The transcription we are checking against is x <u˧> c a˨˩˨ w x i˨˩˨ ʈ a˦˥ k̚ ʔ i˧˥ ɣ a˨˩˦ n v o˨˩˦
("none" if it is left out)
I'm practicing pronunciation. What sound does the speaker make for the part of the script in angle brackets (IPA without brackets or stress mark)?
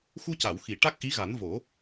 u˧